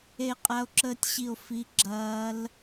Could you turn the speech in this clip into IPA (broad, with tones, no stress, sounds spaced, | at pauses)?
e˦˨ qʼ a˦˥ o̯ ǁ əː˦˥ tʲ ɕ i˦˨ o̯ f i˦˥ ɡ͡ǁ ɐː˦˥ l